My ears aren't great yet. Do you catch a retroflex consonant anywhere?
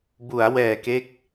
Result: no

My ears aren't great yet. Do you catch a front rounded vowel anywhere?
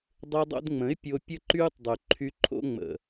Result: yes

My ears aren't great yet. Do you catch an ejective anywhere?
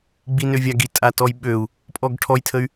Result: yes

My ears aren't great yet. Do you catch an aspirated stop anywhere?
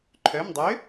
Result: yes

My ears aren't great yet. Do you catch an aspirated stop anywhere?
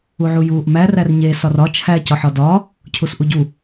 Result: yes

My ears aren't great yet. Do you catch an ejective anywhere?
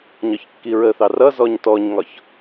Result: no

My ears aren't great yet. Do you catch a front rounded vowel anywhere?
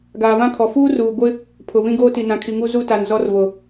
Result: no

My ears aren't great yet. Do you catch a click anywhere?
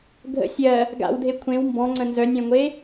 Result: yes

